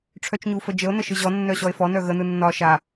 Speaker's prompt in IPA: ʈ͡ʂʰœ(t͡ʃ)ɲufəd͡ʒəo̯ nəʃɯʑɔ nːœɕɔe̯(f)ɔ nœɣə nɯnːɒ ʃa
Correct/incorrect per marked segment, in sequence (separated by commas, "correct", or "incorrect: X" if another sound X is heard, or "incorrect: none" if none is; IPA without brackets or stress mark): correct, correct